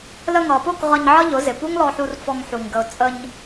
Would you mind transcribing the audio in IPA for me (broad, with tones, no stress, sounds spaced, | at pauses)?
l ə˧ ŋ ʌ˨ p ʊ˦˨ k ʁ ʌ˧ ɲ ʕ ʌ˦ ʎ ʊ˨˦ z ɪ˨ p u˦ ŋ l ɔ˧ ħ u˧ r f ɔ˧ ŋ ħ u˨ ɲ ɡ ə˨ ʊ̯ t͡sʼ ə˧ ɲ